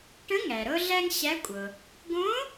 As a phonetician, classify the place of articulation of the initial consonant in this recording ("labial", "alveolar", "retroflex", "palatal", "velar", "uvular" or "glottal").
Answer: retroflex